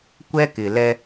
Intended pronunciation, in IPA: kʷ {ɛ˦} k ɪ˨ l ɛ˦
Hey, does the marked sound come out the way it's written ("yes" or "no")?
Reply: yes